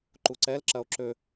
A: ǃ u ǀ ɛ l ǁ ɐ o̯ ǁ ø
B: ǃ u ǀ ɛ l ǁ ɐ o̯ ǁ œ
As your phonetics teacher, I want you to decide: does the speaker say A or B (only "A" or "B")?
A